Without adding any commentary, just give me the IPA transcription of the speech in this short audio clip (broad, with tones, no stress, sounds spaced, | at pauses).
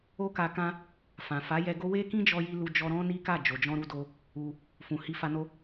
o˦ k a˧ k ã˦ | f ã˨ f a˨˦ j ɛ˧ ɡ o˦ w e˦ k ĩ˦ d͡ʒ ɔ˧ j i˧ l u˧ d͡ʒ ɔ˧ ɾ ɔ̃˦ n i˦ k a˦˨ d͡ʒ o˨ d͡ʒ ɔ̃˧ ɾ u˧ d o˧ | u˧ | f ũ˨ h i˧ f a˧ n o˦